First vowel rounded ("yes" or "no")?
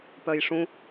yes